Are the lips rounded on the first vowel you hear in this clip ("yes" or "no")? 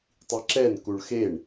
no